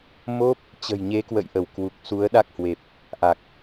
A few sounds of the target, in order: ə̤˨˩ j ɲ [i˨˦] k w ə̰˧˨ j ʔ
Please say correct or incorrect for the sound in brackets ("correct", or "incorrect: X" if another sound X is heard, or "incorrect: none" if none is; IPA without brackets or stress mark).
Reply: incorrect: e˨˦